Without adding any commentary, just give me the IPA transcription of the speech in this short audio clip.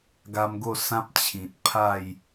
ɡ a˧ m ɡ o˥˧ s ã˦ p̚ t͡ɕʰ ĩ˨ t̚ pʰ a˥˧ j

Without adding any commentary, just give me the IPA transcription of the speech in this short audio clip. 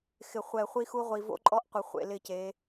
x ɪ˨ χʷ ɛ˨ χʷ i˦ x u˦ ʁʷ i˨ v o̰˦ ǃʼ ɔ˦ ʔ qʷ ɪ˨ χʷ ḛ˦˨ l ɪ˦˨ c e˨˦

